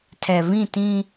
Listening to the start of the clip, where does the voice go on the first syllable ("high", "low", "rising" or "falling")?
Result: low